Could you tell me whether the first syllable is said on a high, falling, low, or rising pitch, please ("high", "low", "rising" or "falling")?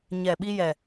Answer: low